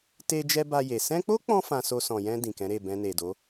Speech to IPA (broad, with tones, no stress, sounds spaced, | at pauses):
t e˧ d͡ʒ ɛ˧ b a˧ j e˨ s ɛ̃˧ k͡p o˦ k͡p ɔ̃˧ f ã˧ s o˧ s ɔ̃˨ j ɛ̃˧ d ĩ˨ k ɛ̃˨˦ ɾ e˦˨ b ɛ̃˧ n e˨ d o˨˦